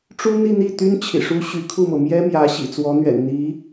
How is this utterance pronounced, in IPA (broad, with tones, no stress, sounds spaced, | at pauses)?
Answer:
ʈ͡ʂ u˥ n̪ i˥˧ n̪ i˥˩ t̪ y˥ n t͡ɕʰ ḭ˨˩ ʂ u˥ ɕ y˧˥ kʰ u˥˩ m ɤ˩ m j ɛ˥ m j ä˧˥ ɕ ḭ˨˩ t͡s w ɔ˧˥ n̪ ɥ ɛ̰˨˩ n n̪ i˧˥